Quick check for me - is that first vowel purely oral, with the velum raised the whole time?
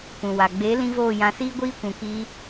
no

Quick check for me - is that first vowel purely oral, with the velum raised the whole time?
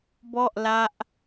yes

